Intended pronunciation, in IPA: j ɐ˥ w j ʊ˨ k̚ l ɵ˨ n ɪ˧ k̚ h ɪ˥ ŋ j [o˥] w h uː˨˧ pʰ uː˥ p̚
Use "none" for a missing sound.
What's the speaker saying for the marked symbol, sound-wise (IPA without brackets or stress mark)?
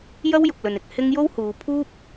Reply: o˥